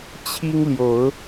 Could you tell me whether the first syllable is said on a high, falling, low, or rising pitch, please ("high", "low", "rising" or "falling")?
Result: high